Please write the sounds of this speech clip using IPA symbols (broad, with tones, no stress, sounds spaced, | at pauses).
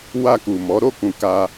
w a˧ k u˨ m ɔ˨˦ ɾ o˦˨ k ũ˨ k a˧